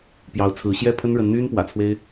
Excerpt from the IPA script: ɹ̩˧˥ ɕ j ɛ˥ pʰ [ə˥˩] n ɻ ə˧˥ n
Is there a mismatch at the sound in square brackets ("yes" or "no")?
yes